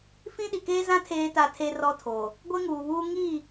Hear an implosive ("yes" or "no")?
yes